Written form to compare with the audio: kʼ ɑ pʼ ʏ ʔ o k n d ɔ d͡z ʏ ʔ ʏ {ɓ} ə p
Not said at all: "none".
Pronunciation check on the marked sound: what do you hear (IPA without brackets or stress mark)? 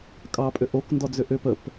p